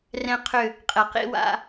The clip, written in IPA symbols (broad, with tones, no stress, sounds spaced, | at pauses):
r ɛ̃˦ qʰ ʏ˦˨ | qʼ ɛ˨ q ḭ˦ w a̰˦